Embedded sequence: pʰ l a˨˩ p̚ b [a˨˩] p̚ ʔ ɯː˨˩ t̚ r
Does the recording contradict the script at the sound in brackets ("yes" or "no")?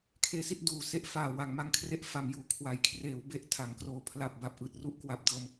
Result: no